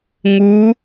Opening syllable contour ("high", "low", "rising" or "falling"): rising